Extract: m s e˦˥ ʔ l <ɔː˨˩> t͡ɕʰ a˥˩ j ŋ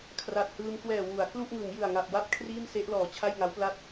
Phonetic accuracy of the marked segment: correct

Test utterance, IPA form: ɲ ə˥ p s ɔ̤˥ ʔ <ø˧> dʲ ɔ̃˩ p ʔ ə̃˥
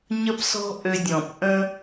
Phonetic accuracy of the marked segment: correct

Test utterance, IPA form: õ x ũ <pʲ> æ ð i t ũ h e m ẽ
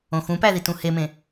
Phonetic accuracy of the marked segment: incorrect: p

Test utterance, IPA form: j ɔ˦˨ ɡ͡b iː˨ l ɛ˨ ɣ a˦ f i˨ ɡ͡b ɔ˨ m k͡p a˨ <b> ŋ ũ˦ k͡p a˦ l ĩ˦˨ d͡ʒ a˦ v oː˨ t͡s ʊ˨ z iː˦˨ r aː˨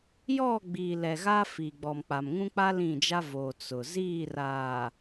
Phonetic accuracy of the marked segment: incorrect: m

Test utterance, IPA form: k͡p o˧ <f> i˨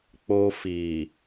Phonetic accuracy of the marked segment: correct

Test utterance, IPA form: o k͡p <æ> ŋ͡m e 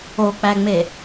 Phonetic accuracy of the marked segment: correct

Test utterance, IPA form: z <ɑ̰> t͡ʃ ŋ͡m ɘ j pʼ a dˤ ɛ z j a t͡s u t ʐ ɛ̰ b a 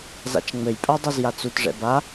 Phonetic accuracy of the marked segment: incorrect: a̰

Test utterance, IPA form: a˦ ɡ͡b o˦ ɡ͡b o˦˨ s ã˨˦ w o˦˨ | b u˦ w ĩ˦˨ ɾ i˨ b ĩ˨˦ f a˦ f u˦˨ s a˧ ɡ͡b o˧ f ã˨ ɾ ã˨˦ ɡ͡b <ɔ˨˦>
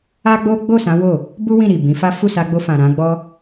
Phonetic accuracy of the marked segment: incorrect: ɔ˦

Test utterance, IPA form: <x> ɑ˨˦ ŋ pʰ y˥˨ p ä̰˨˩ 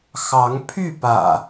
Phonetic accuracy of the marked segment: correct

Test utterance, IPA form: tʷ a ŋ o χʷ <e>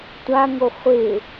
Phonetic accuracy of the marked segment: correct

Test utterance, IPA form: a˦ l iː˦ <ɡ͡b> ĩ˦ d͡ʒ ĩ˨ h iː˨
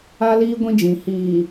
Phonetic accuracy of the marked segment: incorrect: ɡʷ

